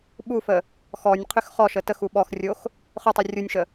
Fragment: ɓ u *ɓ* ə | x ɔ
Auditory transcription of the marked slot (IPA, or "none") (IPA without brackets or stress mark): f